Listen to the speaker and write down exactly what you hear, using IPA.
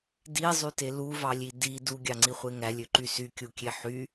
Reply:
dizˤyte luvɑlʲi di duɡʲɑŋ͡ǀiχʷe ŋælʲøǃy sykʲukʲe ħy

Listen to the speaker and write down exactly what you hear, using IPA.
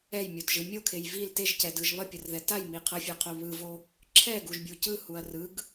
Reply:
ɛjmʲodʒɯ mʲokʰej vil teʒcɛdɯʒ βʌpʲʌrðɛ tajmi qʰʌfʲaqʰo βɯvo | ǁʰɛɡuʒbʲu cɯhuɐ̯ rɯɡ

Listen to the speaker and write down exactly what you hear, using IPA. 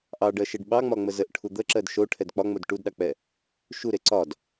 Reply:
ʔɑɖɜʃeɖ ɓɑŋ͡mɒŋ͡mə zəʔʈʰu d̪əǁɜd ʃoʈʰɛd k͡pɒŋ͡mod ʈudɗɑk͡pɛ | ʃuɾe ǀɒd

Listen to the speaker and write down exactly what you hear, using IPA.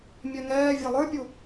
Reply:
mʲɛŋɛː vʲælˠə˞pʲu

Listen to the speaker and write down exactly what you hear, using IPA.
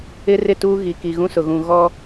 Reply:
ɪ˦ rɪ˦˨tuː˦ ɣi˨ ki˨ɣũ˦sʊ˨ɣũ˨ ɣɔ˦

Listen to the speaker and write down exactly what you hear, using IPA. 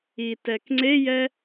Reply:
itɛk ŋ͡ǀejɛ

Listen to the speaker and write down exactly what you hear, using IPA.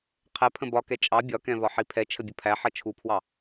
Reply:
qʰɛ pʰə̃bɒkɛ t͡ʃʼɑ bʲɒkɛ̃vɒ ħipʰɛ t͡ʃʰəbʲʊpʰæ ħʌt͡ʃʰupʰwɑ

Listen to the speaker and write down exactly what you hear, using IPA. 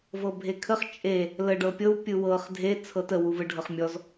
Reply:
vɤbʱekʰəχ t͡ʃʼe | ləɖɤpʲɤw pʲɯwɤχ dʱe t͡sʰɤtəwuvɯ ɖʱɤχmʲɔz

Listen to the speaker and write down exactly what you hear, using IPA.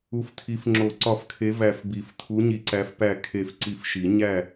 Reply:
u˨˦ftʰi˨˦f ŋ͡ǁo˨˩˦ ǀɒ˧˩fkʰe˨˦ væ˧˩fbi˨˩˦f tʰu˨˦ɲi˨˦ǀæ˨˦f pæ˧˩ kʰe˧˩f ǀi˧˩fʃi˨˩˦ ɲæ˥˨

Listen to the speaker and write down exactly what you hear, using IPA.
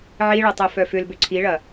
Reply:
ʕiɭɐ tˤœfœfʏlbʏ ǀʰiɭɐ

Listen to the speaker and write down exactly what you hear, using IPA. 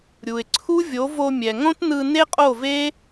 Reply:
ɾʲu˨ɪ̯ ǀʰu˦vʲo˨˦ vo˧mʲɛ˨ŋõ˦tnɯ˧ ne˦qʼo˦˨ve˦

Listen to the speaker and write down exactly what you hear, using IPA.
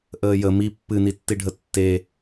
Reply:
ʔəːjə mi pːɨnitːiɖʱə tːe

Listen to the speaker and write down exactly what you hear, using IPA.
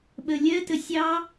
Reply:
ɓə lʲɜtə sʲɑ

